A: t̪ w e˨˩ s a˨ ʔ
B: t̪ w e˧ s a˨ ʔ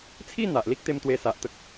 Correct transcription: B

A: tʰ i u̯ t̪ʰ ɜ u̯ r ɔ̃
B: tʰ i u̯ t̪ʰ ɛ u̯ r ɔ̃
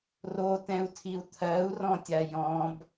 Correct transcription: A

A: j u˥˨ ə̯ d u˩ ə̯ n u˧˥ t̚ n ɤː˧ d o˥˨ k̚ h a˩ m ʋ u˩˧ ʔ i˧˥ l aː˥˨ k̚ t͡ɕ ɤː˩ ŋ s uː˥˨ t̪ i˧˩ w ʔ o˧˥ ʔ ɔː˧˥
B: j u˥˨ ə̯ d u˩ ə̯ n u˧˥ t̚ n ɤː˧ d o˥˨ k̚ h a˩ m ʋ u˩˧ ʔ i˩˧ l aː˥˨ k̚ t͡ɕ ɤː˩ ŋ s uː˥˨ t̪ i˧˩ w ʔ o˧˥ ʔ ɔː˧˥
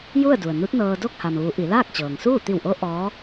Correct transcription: B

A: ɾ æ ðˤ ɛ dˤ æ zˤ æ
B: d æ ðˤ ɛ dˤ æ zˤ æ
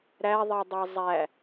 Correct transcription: A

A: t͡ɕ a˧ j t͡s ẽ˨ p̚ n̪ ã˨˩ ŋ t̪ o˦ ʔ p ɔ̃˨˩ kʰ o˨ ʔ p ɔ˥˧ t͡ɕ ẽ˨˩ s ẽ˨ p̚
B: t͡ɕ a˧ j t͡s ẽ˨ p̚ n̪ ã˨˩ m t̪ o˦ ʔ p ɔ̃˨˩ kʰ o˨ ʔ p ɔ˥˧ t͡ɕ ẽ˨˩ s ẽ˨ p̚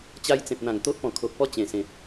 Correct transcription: A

